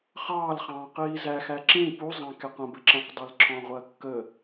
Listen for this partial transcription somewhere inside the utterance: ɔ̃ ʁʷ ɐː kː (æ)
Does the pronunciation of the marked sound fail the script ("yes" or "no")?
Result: yes